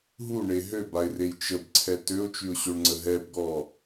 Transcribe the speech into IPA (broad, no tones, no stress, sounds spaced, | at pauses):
ɦ u ɳ e ɦ ø b a ɪ̯ r e j t͡ʃ ə b ǀʰ ɛ t ø ʊ̯ t͡ʃ y ʊ̯ ɕ o ɳ ŋ͡ǀ ə ɦ ɛ b ɡ ɔ